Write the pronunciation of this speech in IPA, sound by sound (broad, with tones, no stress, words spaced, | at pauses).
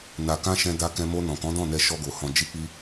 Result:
na˨kã˧ ʃɛ̃˧da˧kɛ̃˧mo˧ nɔ̃˨kɔ̃˨˦ dɔ̃˦˨nɛ˧ ʃɔ˧ɡo˨hɔ̃˧ d͡ʒi˧k͡pi˧